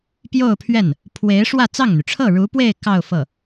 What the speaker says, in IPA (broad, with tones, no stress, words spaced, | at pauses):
pjo˥˧ʊ̯pʰɥɛ˥˩n | pʰwe˧˥ɪ̯ ʂwä˥˧t͡sɑ˥˩ŋn̪y˩ ʈ͡ʂʰɤ˥˩ɻu˧˥pwe˥˧ɪ̯ kɑ˥˧ʊ̯ fɤ˥˩